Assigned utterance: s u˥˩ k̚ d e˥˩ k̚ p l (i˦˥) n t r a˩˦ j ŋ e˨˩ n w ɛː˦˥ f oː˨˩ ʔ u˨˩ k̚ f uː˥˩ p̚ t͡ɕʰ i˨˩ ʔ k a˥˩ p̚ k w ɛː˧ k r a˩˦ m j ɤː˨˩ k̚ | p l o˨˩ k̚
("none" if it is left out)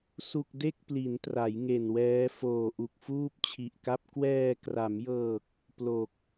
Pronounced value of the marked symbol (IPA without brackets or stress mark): i˩˦